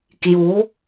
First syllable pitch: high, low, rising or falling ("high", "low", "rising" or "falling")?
rising